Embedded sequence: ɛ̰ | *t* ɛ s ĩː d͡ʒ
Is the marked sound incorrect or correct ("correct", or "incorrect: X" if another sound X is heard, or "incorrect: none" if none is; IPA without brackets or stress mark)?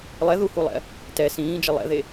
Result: correct